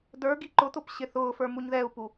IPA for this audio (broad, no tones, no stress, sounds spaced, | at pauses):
d ə˞ ɡ i ǃ ʊ t̪ ʊ p ɕ ɪ θ ʊː f ə˞ m u ɲ ð ɛ u̯ p u